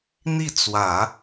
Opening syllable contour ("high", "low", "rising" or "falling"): falling